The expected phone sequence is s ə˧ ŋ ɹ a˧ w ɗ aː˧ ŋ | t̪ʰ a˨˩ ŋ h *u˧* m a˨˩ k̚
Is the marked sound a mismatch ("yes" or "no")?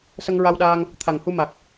no